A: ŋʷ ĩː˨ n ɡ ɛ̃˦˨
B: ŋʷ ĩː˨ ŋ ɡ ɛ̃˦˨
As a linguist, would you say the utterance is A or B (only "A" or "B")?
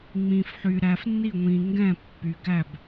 B